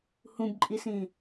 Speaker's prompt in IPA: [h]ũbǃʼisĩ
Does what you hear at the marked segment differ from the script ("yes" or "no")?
no